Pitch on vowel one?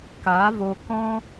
rising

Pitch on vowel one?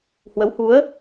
rising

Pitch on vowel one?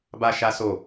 high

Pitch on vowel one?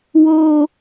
high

